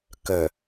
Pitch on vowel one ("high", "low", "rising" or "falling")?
low